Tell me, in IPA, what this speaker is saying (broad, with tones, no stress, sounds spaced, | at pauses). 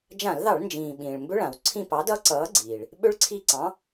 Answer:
d͡ʒ ã˧˩˧ l ð ɑ˧˩˧ ɭ n d͡ʒ ĩː˩ ɓ ĩː˩ ɭ m b ʏ˦˥ ɭ ã˩ w ǀʰ ĩ˦˨ p ɑ˨˥ d ʌ˦˥ ǀ ʌː˨˥ ɡ͡ǀ iː˩ ɭ | ɓ ʏ˦˥ ɭ ǀʰ i˦˨ ǀ ɑ̃˨˥